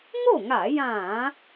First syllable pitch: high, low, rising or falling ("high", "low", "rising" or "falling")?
falling